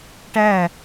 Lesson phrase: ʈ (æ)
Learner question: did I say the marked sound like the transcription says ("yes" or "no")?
yes